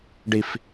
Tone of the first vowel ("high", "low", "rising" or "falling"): low